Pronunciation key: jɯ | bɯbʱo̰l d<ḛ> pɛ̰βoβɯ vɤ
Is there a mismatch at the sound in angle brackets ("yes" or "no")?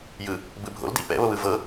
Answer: yes